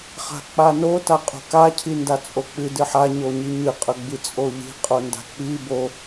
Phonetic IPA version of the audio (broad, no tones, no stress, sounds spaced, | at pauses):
χ a̤ k͡p a n o t a qʼ o̤ k a cʰ i n d a t͡sʼ o k͡p ɨ d ɨ ħ a ɲ o ɲ i ɲ ɨ qʼ ɵ ɡ͡b i t͡sʼ o ʎ i̤ qʼ o n d a̤ k͡p i b o